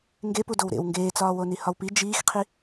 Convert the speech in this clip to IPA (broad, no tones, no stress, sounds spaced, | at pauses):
ŋ ɡ e p u d o w ɾ ḛ w ŋ ɡ eː t͡s ɒː w o n i h ɒ w p i d͡ʒ iː x qʰ i